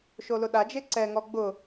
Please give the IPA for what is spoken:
ʃ o l ʊ ɗ a d͡ʒ e ǀ ɛ ŋ ɔ ɡ͡b ʊ

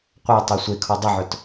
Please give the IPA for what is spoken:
qʷ a tˤ e sʷ e kʰ ɔ dˤ e ʕ œ t

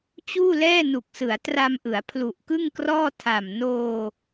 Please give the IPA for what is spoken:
t͡ɕ uː˥˩ l ɛː˥˩ n u˨˩ k̚ s ɯ˩˦ a̯ t r a˧ m ʔ ɯ˩˦ a̯ pʰ l u˨˩ ʔ k ɯ˥˩ ŋ k r ɔː˥˩ tʰ a˨˩ m n oː˧

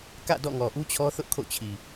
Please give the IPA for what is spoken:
k ä̰˦˨ d ɔ̰˦˨ ŋ ɔ˨ ʔ u˦ t͡ɕʰ ɔ˦ θ ʊ˦ ʔ kʰ o̰˦˨ t͡ɕʰ i˨

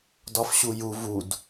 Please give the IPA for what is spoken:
d ɒ f ɕ u j u v u d

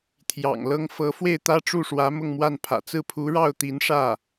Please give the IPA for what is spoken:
t̪ʰ j ɑ̰˨˩ ŋ l ɤ˥ ŋ f ɤ˧˥ f w e˥˩ ɪ̯ t̪ ä˥ ʈ͡ʂ u˥˩ ʂ w ä˧˥ m ʊ˥˧ ŋ m w a˥˩ n pʰ ä̰˨˩ t͡s ɹ̩˥˩ pʰ u˧˥ ɻ ɑ˥˩ ʊ̯ t̪ i˧˥ n ʂ ä˥˩

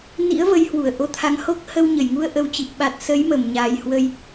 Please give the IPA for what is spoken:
n ḭ˧˥ ə̯ v ə˨˦ j h w u˧˩ ə̯ ʔ o˧ t̪ʰ a˨˦ ŋ h o˦˥ k̚ h ə˧ w ɲ ə˧˩ j ŋ u˧ ə̯ ʔ ə˨˩ w t͡ɕ i˨˩ p̚ ɓ a˨˩ t̚ s ə˨˦ j m ə˧˩ m ɲ a˨˩ j h w ə˧ j

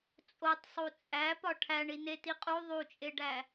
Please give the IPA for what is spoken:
t͡sʼ o tˤ sˤ u t͡sʼ æ p ɒ ʈʰ æ ɳ i n e t i qʼ u ðˤ u t͡ʃʼ e ɖ æ

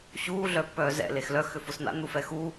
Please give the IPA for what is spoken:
ɕ uː ɮ œ pː œː z ɛ̰ l e x l œ x ʏ f ʊ s n̪ a̰ n̪ u f ɛ x u

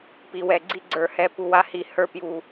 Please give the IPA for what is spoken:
p i˨ w ɛ˨ ɡ͡ǀ i˧ ɡ͡ǀ ə˞˨ h ɛ˧ p u˧ w a˧ h i˨ h ə˞˧ p j u˨

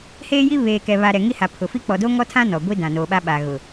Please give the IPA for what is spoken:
h eː˦ j i˦ β eː˨ k ɛ˨ β a˨ ɾ ɛ˨ ŋ i˦ h a˨ pʰ ʊ˨ f i˦ k͡p ɔ˨ d o˦ ŋ ɔ˦ tʰ ã˦ n ɔ˨ ɡʷ i˦ d ã˨ n oː˨ ɓ a˦ ɓ a˨ ɣ ʊ˨

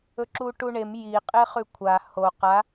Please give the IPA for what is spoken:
ɵ ǁ u ʈ u ɳ e m j i qʼ e χ ʉ kʷʰ a h o q a

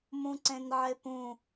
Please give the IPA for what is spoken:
m ũ ǀ ẽ n ʕ e p ũ

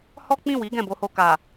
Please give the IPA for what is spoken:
h ɔ˦ k͡p ĩ˦˨ w i˨˦ ɡ ɛ̃˦˨ b o˧ h o˧ k a˨

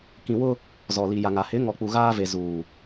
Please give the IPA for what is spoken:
k ĩ˨ w ʊ˦ | z ɔ˨ l i˨ j a˨ ŋ a˨ h ɪ˨˦ ŋ ɔ˨ k͡p u˨ ɣ aː˦ v e˨ z uː˨

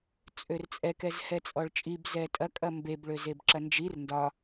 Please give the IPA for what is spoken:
t͡sʼ ø r t͡sʼ ɛ k ɛ z h ɛ t͡sʼ ɔ ɭ t͡ʃʼ i b z ɛ tʼ ɐ kʼ ɐ m b e b ɭ ø z e b ǁ ɐ n d͡ʒ i r n d ɒ

